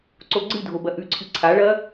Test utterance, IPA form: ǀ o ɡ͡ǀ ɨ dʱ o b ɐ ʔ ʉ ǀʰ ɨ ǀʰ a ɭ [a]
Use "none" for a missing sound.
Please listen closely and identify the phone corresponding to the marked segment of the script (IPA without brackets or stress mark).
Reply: ɐ